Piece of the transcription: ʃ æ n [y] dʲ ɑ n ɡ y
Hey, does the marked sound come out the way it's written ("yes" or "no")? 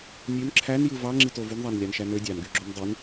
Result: no